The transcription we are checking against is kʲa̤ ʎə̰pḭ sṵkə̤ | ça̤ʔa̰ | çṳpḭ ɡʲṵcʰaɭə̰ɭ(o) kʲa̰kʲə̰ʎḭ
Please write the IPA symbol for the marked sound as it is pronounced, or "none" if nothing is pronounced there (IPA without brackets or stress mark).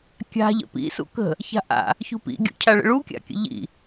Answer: u